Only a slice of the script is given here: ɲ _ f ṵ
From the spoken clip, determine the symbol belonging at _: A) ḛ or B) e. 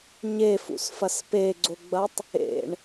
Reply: B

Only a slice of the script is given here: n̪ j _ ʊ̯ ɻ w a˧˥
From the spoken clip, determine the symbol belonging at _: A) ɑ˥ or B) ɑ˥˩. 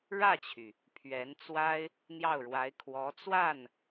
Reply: B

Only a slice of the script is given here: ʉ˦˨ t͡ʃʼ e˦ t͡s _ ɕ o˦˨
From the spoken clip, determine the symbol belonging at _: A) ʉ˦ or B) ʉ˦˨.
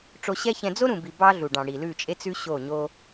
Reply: A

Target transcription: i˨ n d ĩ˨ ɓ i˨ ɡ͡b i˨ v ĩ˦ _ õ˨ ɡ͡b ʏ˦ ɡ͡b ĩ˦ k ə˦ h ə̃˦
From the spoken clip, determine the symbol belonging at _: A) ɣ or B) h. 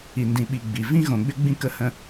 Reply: A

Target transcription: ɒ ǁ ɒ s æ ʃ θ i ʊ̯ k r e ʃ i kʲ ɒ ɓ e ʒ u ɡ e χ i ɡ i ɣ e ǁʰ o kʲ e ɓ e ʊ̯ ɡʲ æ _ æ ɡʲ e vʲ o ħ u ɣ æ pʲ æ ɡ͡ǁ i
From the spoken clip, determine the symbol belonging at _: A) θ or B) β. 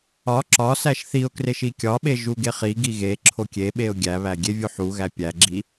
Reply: B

